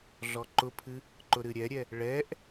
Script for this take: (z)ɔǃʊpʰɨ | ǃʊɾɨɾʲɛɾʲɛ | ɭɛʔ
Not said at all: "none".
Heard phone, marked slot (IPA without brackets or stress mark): ɮ